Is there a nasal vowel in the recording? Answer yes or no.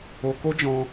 yes